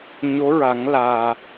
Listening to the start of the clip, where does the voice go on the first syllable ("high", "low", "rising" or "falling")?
rising